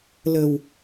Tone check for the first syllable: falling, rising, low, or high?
low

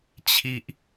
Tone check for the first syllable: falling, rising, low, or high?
low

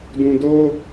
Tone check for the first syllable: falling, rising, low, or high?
low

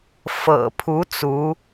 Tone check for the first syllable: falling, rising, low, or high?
low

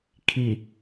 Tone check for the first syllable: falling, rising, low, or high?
low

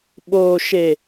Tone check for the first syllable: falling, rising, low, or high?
low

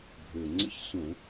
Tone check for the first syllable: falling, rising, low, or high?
low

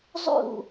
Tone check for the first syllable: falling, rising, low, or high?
falling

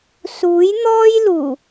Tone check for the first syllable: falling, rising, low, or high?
rising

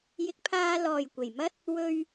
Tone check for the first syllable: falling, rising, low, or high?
rising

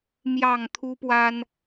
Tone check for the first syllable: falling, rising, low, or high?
low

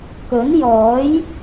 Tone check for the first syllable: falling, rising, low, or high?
rising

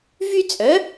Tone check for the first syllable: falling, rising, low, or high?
high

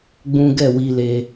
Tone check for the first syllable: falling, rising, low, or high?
high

